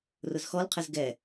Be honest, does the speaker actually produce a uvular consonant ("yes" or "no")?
yes